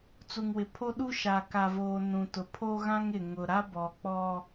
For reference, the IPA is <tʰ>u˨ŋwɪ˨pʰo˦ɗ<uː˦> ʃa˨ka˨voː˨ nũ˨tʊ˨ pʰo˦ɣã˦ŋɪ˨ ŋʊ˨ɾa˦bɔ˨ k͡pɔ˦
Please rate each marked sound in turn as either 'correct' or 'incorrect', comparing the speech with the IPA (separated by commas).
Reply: incorrect, incorrect